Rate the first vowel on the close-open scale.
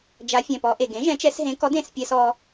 open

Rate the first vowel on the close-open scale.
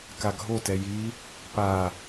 open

